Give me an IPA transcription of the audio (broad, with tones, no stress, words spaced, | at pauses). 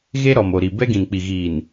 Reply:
ɣe˦ɾɔ˨mo˨ɾi˨ bɛ˦ɡĩ˨nk͡pi˨ ɣiː˨n